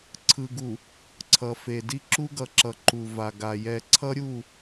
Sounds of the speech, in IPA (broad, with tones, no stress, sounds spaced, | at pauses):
ǀʰ ɯ˨ ɡ u˨ | ǀʰ ʌ˨ f e˨ d i˦ ǁ u˦ ɡ ʌ˨ ǁ ʌ˨ ǃ u˨ v a˨ ɡ a˨ j ɛ˨ ǀʰ ʌ˦ ɾʲ u˦˨